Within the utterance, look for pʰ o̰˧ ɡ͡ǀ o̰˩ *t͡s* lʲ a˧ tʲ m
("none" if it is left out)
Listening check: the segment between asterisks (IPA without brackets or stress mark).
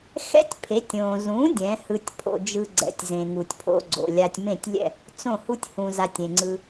none